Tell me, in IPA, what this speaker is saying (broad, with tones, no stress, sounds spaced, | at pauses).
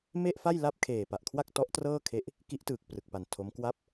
m e˥˩ ʔ f a˥˩ j l a˥˩ p̚ kʰ eː˨˩ p a˨˩ ʔ kʰ w a˥˩ k̚ t ɔ˦˥ ʔ t r ɤː˥˩ kʰ e˦˥ ʔ | k i˦˥ ʔ t ɯː˨˩ k̚ p r ɯ˨˩ k̚ p a˨˩ n tʰ o˦˥ m k w a˦˥ p̚